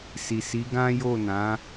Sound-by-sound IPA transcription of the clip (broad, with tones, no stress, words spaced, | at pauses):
si˨si˨˦ɡã˦ jo˦˨nã˨˦